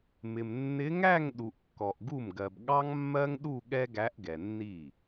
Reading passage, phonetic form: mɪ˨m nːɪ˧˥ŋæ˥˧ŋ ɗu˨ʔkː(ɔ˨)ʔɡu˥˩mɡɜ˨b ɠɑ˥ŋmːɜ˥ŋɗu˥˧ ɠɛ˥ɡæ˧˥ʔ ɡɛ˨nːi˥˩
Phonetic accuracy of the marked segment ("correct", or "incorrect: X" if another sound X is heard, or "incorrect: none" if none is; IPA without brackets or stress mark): correct